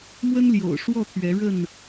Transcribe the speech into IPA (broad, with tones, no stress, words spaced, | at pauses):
mwə˦nljo̰˨˩ʊ̯ʂwɔ˥˨t̪ʰɥɛ˨˦ ɻə˥˨n